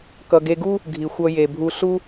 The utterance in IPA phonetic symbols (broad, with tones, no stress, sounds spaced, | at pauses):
k ʌ˩ ɡ e˨ ɡ u˥ | ɡʱ i˩ xʷ ʌ˨ j e˩ bʱ u˨ ɬ u˦